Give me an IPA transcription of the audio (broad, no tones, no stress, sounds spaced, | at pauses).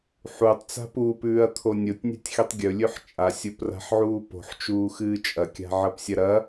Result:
ħ u tˤ t͡s a̤ p u p ʉː ɐ̯ t̪ʰ o nʲ o tʲ nʲ a̤ tʲ x i tˤ ɡʲ ɵ lʲ ʉ ħ t͡ʃʼ a sʲ o p r a̤ ħ ʕ uː p o̤ ħ t͡ʃ uː x ɨː t͡ʃʼ ɐ kʲ a̤ ʕ ɐ p sʲ ɐ ɾ ɐ